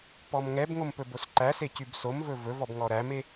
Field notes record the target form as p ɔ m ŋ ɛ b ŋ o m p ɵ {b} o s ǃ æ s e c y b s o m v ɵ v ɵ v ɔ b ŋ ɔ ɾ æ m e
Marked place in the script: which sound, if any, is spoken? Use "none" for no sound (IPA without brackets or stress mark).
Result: b